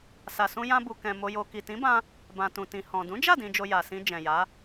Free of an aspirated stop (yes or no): yes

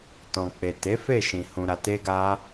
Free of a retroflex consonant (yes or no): yes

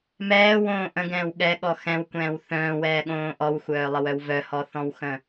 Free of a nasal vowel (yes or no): no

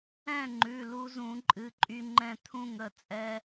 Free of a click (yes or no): no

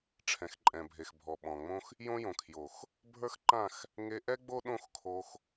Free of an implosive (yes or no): no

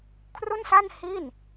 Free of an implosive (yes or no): yes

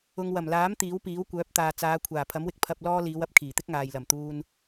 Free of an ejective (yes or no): yes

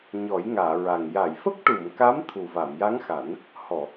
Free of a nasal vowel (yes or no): yes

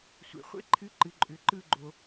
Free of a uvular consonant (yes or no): no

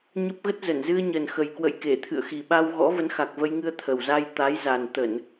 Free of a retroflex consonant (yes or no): yes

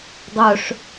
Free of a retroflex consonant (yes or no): no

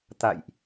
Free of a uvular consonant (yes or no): yes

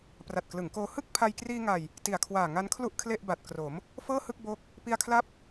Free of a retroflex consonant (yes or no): yes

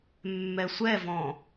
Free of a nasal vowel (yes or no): no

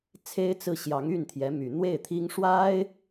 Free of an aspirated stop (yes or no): no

